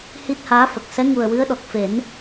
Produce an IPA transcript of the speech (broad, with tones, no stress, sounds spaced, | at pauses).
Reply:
h i˦˥ t̚ h aː˧˥ f ə˨˩ k̚ s ɛ˧˥ ŋ u˨˩ ə̯ w ɨ˧˥ ə̯ ɗ ɔ˨˩ k̚ f e˨˩˦ n